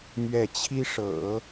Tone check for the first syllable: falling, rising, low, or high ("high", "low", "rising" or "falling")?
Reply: falling